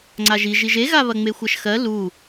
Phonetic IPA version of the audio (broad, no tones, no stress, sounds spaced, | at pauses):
ŋ͡ǀ a ʒ i ʒ i ʒ e ɣ a β ɐ ŋ͡m e xʷ ɜ ʃ x ɜ l u